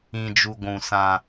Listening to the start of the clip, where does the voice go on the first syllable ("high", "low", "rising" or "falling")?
low